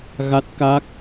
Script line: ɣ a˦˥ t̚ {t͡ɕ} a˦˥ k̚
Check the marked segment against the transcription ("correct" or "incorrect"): incorrect